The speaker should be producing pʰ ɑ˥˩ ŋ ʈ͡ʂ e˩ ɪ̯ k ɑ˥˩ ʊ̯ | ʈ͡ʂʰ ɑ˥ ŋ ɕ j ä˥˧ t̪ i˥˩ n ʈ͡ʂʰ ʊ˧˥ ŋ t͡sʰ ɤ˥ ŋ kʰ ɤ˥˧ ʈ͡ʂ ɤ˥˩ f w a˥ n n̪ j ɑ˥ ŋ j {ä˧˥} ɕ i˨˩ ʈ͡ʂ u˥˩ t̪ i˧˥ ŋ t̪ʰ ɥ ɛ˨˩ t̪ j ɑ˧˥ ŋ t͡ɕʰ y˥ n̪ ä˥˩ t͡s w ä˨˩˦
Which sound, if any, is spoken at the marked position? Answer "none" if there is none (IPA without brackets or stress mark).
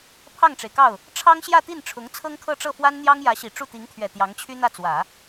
ä˧˥